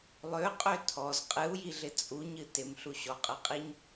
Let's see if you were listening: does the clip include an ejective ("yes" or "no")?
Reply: yes